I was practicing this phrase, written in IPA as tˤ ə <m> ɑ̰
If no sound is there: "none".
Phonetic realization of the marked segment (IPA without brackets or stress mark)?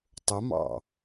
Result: m